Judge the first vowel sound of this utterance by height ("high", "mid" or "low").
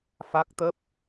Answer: low